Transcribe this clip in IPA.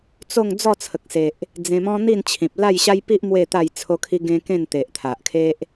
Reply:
t͡so˥˧ŋ d͡zɔ˥˧t͡sʰə˨k̚se˨ʔ | d͡zẽ˧mɔ̃˦ n̪i˥˧nt͡ɕʰĩ˨p̚ la˥˧jɕa˦jpi˦ʔ mwe˥˧t̪a˥˧j t͡sʰo˦kʰi˦ɡẽ˦ kẽ˥˧nt̪e˨ʔt̪ʰa˨ʔkʰe˦ʔ

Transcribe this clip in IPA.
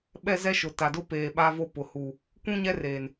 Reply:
ɓɛ˦zɛ˦ʃʊ˨ ta˨dʊ˦ peː˨ ɓa˦vo˦ pʊ˨ hu˨ | kʷũ˦ɲɛ˦reː˨n

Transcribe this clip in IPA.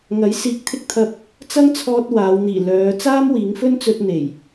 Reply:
ŋɐ˨˥jsiː˧k̚t̪ʰɪ˥k̚t̪ʰɐ˧p̚ | t͡sɐ˥ŋt͡sʰɔː˧t̚ waː˨˧wn̪iː˨˩ lœː˨˧ t͡saː˥mwiː˨˧ŋfɵ˥nt͡sɵ˧t̚ n̪e˨˩j

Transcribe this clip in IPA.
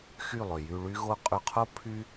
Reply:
xy˦˨lˠø˨ jy˧ɭy˦ ɣo˦ qʼy˧qʰo˦ pʰy˦

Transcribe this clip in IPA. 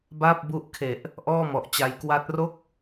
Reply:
baː˥˩p̚bu˦˥ʔkʰe˨˩ʔ | ʔɔː˥˩mɔ˨˩ʔt͡ɕa˧j kwa˦˥t̚ro˥˩k̚

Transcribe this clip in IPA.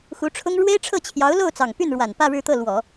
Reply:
xu˧˥ʈ͡ʂʰʊ˥ŋ ɻwe˥ɪ̯ʈ͡ʂʰɤ˥˩ t͡ɕʰjɑ˧˥ʊ̯lo˥˩ʊ̯t͡sɑ˨˩ŋ py˥˩nɻwa˨˩n pä˥˧ɻɻ̩˥˧t̪ɤ˥˩ lwɔ˨˩˦

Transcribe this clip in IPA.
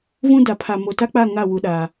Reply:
vũ˦da˨ pʰa˨mo˨ta˦k͡pa˦˨ ŋa˦˨ wu˨ɗa˨

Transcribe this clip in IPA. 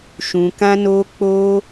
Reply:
ʃũ˧kã˦no˦ k͡po˦

